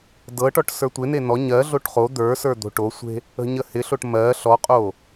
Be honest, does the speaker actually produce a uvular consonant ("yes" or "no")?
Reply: yes